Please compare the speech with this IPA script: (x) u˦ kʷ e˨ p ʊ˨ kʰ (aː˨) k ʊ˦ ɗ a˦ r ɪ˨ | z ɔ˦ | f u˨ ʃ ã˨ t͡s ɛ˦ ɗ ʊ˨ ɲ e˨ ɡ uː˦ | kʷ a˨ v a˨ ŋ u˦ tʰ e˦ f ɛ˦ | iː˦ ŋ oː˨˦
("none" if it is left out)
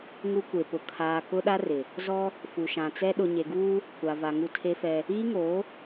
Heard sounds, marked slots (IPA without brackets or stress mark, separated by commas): ŋ, aː˨